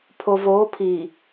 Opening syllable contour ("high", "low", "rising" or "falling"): low